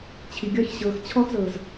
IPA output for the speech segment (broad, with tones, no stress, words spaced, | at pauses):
t͡ɕʰi˨ɡʲɒ˦˨ç ɕɤː˨xt͡ɕʰɔ˦xzɤ˨z